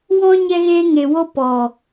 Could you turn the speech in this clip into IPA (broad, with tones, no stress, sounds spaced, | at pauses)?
w ɔ̃˧ ɲ ɛ˧ ɣ eː˧ ŋ e˨ w o˧ p ɔ˨